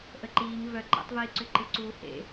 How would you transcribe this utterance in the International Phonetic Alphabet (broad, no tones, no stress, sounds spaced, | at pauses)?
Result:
ʔ ə ǃ iː ŋ v œ ǃ ɛ̰ tˤ v iː ǀ ʏ ǃ ɪ ǀ uː h ḛ